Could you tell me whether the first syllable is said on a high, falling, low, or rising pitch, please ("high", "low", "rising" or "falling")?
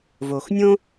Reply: low